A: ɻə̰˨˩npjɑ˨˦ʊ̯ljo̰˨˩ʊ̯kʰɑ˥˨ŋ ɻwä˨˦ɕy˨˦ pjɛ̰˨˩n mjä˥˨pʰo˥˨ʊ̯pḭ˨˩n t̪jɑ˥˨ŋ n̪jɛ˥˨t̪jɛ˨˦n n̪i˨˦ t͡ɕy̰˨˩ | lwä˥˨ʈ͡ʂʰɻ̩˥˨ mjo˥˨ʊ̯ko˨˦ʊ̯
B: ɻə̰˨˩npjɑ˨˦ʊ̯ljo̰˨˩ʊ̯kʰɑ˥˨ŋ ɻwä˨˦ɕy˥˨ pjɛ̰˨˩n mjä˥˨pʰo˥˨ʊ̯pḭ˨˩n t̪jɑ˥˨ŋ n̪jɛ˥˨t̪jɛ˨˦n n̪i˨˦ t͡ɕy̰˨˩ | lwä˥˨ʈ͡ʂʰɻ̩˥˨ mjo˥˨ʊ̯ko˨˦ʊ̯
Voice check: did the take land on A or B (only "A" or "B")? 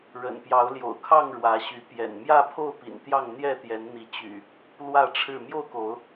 A